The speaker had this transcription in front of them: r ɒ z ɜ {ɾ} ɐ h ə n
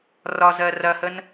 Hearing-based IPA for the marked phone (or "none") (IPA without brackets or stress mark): r